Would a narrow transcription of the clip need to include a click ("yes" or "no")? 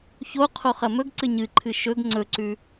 yes